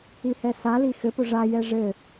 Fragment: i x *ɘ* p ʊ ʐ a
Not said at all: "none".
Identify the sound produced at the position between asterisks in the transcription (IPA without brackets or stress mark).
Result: ɘ